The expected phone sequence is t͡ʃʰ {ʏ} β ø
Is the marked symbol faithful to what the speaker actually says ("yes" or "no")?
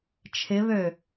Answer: no